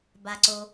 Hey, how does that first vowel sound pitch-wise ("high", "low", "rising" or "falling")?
low